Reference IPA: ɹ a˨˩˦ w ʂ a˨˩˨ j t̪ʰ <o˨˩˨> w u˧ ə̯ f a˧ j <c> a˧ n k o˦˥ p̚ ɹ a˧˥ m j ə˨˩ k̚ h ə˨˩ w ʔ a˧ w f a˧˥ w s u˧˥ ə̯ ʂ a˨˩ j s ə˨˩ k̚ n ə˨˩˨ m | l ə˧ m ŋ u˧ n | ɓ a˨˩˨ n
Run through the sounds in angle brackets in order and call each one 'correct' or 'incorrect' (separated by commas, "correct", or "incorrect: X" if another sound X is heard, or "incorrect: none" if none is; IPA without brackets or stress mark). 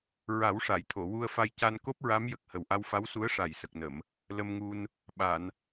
correct, correct